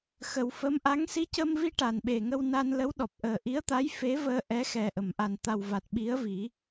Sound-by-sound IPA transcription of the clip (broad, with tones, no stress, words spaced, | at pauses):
xə˨˩wfə˧˥mʔa˧˥ŋ si˧˥cə˧mvi˧ ʈa˨˩nɓe˨˩ŋə˧w na˧nlə˧˥wɗɔ˨˩p̚ʔəː˨˩ ʔi˧˥ə̯t̪a˧˥j fe˧˥vəː˧ ʔɛ˧˥xɛ˨˩ ʔə˨˩˨mʔa˨˩n t̪a˨˩wva˨˩t̚ ɓi˧˥ə̯vi˨˩˦